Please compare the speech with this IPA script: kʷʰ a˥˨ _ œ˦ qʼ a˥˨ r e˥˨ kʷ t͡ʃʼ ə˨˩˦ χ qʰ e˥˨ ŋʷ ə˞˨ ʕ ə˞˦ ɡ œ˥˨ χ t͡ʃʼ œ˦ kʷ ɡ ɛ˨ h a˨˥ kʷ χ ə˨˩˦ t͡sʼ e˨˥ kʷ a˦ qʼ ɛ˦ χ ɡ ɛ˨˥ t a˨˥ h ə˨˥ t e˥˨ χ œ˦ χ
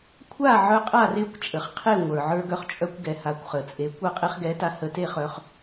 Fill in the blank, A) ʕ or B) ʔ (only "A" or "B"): A